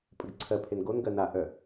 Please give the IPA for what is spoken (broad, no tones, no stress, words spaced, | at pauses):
pʼəɡǀʰɜpʰen ɡonɡɜ naʔœ